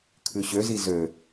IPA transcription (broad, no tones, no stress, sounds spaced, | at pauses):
kʰ ʉ ɕ ø z i z ø